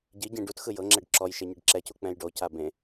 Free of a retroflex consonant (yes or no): no